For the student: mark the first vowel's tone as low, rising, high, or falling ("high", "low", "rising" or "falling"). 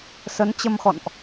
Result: rising